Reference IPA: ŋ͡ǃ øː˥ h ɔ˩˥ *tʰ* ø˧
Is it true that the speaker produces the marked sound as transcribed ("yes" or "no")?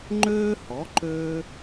no